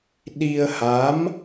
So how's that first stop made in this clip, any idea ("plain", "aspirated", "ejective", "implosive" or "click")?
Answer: implosive